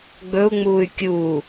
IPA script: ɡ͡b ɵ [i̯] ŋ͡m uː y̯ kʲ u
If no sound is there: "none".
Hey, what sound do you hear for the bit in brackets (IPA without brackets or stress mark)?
u̯